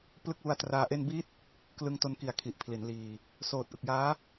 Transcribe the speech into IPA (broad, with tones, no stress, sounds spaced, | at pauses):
p l ɯ˦˥ k̚ w u˧ a̯ t r aː˧ ʔ e˥˩ n b i˦˥ t̚ | k l ɯ˧ ŋ t o˧ n k i˨˩ a̯ kʰ i˨˩ ʔ pʰ l i˩˦ n l iː˧ | s oː˨˩ t̚ ʔ ɯ˨˩ k̚ j aː˦˥